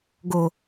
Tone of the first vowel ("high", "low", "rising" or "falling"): low